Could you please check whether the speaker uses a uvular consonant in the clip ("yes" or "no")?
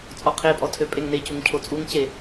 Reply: yes